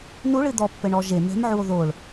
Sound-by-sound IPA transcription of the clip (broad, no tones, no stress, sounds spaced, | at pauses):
n u ɭ ɨ d̪ ɔ pː ɘ ɳ ɔ ʒ e m ɛ̤ m ʕ u o̯ ð o ɭ